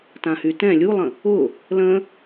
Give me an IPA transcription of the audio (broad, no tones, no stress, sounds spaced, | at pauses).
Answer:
t ã h y t ɛ̃ lʲ u lˠ ə̃ | ʊ | l ə̃